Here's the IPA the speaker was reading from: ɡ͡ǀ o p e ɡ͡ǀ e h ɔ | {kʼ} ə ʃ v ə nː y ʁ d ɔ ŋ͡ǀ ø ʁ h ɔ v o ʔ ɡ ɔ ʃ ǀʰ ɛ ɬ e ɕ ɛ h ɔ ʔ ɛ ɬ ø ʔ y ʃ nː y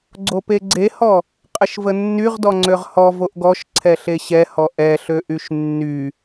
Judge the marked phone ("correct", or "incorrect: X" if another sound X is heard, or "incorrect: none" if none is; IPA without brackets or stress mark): incorrect: qʼ